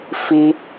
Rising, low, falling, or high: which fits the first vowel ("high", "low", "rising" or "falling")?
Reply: high